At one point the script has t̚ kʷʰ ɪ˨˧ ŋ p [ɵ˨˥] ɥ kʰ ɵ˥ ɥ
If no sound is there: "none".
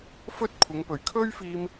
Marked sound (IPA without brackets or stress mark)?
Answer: ɵ˨˩